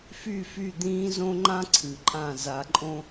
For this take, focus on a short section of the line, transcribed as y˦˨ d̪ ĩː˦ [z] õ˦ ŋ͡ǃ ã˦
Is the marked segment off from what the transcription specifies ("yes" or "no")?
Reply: no